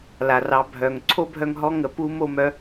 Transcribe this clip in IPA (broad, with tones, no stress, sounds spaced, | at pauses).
l a˩ r ɑ˩˧ bʱ œ˩ ŋ ǀʰ o˥ bʱ œ˧ ŋ ɦ ɔ˧˥ ŋ ə˩ p u˧˥ m o˧ m œ˩˧